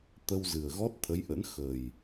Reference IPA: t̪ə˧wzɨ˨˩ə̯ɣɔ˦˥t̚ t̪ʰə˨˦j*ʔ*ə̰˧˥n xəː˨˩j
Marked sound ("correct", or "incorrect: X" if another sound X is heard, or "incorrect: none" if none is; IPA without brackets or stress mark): correct